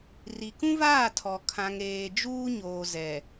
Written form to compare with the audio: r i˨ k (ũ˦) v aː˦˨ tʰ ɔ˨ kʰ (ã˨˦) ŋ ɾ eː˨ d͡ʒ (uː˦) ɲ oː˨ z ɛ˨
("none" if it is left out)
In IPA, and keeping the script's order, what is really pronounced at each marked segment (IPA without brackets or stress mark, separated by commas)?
ũ˦, ã˨, uː˦